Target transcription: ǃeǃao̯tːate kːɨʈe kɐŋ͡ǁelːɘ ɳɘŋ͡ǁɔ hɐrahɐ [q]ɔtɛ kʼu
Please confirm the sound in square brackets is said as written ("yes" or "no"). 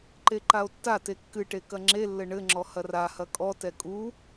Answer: no